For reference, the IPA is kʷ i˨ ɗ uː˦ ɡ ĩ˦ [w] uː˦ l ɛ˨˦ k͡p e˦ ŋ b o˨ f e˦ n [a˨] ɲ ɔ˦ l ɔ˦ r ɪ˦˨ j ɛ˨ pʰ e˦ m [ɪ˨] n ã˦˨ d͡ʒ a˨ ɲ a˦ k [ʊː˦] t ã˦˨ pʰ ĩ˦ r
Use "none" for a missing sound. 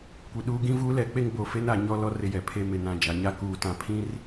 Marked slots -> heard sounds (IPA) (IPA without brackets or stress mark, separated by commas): v, a˨, ɪ˨, uː˦